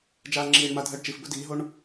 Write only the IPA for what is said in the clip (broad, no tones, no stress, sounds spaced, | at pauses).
d͡ʒ aː ŋ͡ǁ iː ɳ m a dʱ əː ɖ t͡ʃ i f b ɵ d iː ɦ o ɳ